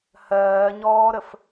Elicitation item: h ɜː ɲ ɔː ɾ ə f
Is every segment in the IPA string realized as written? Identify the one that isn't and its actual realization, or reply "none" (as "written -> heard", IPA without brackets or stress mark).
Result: none